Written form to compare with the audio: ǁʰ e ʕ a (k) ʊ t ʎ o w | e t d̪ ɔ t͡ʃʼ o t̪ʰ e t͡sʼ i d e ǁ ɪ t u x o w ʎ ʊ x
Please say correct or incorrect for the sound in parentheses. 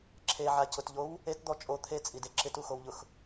incorrect: c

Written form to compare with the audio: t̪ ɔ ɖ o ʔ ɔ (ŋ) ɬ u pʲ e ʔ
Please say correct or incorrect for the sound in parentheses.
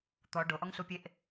correct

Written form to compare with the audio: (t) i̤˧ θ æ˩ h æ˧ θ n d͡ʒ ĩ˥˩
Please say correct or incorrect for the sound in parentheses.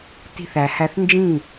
correct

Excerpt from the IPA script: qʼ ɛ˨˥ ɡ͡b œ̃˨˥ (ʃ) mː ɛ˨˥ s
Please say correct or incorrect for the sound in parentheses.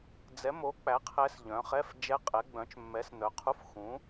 incorrect: t͡ʃ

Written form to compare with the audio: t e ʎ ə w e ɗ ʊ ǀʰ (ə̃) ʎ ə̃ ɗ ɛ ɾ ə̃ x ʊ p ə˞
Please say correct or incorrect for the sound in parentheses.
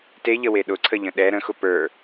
incorrect: ə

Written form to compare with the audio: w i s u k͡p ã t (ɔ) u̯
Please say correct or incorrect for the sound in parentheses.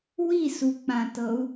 incorrect: ɤ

